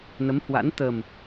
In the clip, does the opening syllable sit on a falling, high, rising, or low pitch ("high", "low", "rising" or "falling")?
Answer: rising